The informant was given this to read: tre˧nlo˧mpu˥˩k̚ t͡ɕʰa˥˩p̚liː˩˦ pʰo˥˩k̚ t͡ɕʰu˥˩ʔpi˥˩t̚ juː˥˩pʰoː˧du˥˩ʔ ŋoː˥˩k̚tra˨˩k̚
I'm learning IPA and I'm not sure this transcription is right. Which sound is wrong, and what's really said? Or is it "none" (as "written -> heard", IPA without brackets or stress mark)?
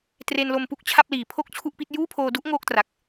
none